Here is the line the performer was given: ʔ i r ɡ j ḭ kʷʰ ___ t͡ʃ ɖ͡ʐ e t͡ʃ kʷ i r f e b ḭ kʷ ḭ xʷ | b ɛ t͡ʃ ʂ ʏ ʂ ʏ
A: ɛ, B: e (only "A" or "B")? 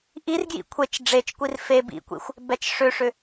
B